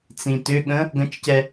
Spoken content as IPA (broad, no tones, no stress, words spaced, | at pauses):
t͡sĩtʏɠə̃ | ɡə̃t͡ʃcɛ